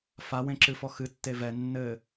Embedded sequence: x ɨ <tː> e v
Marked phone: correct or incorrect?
correct